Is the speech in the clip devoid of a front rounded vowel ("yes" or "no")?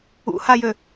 no